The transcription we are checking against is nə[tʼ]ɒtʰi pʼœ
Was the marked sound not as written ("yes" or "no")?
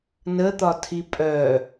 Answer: yes